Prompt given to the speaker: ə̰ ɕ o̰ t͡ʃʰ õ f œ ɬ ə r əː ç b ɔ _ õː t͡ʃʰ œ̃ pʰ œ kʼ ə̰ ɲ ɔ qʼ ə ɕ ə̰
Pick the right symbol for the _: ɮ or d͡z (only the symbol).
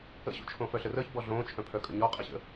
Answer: ɮ